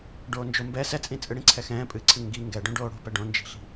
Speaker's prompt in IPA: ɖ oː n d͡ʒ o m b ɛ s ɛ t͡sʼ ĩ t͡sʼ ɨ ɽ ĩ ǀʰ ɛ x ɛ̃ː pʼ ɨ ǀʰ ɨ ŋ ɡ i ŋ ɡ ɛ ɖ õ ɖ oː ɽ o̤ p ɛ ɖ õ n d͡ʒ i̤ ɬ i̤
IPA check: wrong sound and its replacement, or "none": none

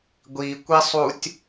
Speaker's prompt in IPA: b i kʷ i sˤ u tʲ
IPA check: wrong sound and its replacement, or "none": b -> ɡʷ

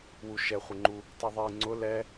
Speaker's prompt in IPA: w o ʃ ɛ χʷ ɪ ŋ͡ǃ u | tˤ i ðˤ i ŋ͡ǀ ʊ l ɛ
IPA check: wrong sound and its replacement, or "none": o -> u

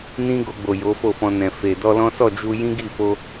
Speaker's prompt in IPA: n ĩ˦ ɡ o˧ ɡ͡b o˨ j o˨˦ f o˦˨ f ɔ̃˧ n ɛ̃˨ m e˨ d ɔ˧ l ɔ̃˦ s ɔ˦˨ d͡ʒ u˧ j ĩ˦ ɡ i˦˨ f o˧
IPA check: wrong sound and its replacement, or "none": m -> f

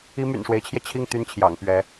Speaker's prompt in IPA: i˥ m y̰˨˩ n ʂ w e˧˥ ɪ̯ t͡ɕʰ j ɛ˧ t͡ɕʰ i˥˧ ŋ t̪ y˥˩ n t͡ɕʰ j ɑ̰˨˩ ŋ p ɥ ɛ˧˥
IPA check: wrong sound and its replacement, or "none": none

